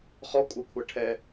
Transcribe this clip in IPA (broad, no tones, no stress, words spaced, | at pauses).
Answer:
χɔkʷʼʌkʷʰʌ ʈʰɛ